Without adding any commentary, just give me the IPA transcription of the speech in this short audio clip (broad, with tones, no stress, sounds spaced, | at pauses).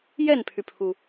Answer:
j ɛ˥˩ n pʰ y˩ pʰ u˩